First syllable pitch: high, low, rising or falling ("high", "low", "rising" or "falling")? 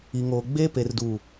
low